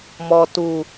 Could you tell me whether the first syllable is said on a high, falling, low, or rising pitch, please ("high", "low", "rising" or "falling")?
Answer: low